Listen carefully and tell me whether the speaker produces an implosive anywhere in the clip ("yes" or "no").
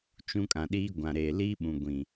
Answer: yes